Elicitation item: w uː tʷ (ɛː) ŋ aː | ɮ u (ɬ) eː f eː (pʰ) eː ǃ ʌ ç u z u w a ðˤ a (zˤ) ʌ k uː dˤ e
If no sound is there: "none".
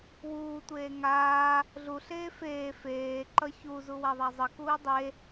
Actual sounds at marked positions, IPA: eː, ɬ, f, zˤ

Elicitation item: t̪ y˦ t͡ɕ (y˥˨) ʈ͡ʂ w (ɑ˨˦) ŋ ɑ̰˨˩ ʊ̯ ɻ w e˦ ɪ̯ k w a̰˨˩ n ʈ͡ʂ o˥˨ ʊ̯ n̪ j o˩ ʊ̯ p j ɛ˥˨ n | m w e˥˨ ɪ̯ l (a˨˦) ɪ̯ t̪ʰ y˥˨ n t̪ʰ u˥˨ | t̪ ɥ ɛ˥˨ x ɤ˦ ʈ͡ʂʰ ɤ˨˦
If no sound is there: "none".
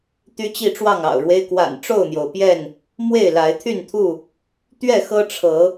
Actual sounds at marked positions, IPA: i˥˨, ɑ˥˨, a˨˦

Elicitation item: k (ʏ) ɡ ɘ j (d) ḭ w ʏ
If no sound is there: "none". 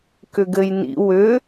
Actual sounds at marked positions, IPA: ʏ, n

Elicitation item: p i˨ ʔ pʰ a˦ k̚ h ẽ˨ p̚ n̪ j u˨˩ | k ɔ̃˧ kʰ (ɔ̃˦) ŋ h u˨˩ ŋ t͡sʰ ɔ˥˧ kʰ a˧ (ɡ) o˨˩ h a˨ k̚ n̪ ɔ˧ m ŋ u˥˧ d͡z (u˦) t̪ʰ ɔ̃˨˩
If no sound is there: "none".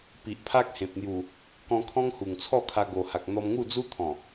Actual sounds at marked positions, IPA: ɔ̃˦, ɡ, u˦

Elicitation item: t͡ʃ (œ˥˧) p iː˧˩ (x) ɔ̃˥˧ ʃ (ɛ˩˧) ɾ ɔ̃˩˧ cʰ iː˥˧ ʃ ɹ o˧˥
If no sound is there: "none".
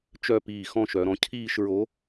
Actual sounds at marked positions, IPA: œ˥˧, x, œ˩˧

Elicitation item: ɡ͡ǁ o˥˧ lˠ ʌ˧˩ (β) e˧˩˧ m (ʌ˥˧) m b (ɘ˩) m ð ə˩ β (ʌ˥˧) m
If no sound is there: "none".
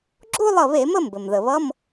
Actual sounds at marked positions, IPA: β, ə˥˧, ɘ˩, ʌ˧˥˧

